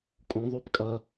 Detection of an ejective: present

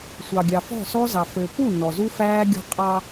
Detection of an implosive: absent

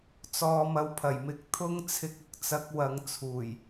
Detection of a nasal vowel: absent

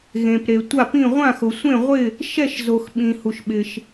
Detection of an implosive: present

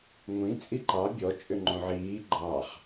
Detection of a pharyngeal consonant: present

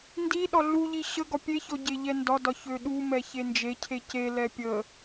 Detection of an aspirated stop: present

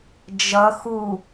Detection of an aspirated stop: absent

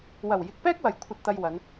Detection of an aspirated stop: present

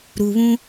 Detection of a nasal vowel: present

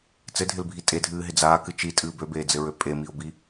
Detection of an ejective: present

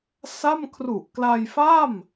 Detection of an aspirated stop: present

